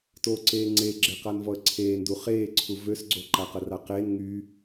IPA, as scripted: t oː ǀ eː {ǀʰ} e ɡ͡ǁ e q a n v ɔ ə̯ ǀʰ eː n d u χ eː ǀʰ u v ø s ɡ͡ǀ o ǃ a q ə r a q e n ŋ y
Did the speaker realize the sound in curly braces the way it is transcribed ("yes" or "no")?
no